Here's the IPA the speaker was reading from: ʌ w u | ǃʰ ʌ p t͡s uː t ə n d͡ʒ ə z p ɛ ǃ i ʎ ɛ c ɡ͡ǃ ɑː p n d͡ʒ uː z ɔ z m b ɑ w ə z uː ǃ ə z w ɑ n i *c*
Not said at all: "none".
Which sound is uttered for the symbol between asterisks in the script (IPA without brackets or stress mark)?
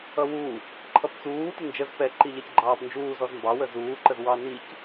c